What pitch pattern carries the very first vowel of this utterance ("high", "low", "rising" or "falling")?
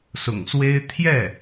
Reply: low